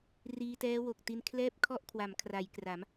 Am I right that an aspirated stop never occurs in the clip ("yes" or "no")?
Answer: no